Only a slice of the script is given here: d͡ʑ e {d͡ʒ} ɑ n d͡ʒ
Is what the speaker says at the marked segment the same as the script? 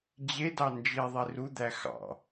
no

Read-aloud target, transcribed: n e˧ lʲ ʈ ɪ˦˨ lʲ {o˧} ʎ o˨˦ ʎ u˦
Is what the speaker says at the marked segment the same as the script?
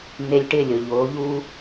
no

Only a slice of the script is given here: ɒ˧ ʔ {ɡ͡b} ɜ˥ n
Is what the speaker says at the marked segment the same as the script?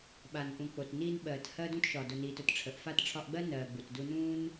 yes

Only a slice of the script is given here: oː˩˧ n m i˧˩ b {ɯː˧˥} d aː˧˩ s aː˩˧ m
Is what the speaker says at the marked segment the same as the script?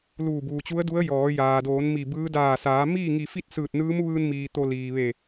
yes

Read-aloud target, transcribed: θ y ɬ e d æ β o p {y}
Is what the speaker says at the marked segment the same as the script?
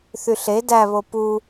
no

